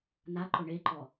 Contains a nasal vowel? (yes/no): no